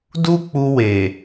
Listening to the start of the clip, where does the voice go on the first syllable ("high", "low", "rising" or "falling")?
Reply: high